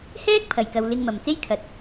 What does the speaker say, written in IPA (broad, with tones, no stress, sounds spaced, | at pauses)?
h ɛː˥ k̚ pʰ ɐ˨˩ j k ɐ˨ w l ɪ˧ ŋ m ɐ˨ m t͡s e˥ j kʰ ɐ˨ t̚